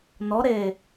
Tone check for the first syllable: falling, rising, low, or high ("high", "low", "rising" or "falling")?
rising